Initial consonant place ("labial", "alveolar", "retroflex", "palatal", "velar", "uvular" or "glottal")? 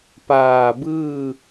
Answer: labial